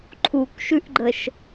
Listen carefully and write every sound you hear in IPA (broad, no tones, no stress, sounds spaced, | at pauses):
ǃʰ u k ʃ ʉ ʔ ɡ͡ǃ ə ʃ